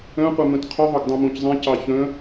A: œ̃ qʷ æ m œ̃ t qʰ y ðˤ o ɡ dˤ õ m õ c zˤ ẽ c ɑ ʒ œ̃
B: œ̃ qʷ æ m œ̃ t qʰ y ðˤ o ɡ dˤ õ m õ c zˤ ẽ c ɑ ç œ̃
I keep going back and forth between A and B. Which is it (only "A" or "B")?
B